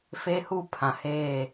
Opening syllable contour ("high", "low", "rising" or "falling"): high